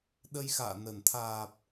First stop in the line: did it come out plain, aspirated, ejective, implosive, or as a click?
implosive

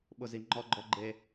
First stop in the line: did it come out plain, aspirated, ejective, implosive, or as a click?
implosive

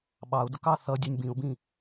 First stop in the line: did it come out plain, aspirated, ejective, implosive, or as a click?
implosive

